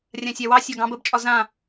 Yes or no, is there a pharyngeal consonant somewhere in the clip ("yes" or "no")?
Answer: no